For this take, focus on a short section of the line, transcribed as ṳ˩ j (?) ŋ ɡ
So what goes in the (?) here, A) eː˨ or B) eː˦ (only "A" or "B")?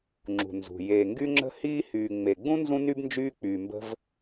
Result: A